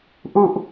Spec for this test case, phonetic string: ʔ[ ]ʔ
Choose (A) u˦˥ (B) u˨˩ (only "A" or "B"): B